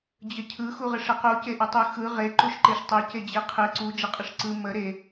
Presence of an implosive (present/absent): absent